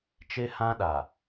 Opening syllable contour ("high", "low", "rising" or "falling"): high